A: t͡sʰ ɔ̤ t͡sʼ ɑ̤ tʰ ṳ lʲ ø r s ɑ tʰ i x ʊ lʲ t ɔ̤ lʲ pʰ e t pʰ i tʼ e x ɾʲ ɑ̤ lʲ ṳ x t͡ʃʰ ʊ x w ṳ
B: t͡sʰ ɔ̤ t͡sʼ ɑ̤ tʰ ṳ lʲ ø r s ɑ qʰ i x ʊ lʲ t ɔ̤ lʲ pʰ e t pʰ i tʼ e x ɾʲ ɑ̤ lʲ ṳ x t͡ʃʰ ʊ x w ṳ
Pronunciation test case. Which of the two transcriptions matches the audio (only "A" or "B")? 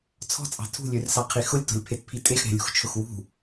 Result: B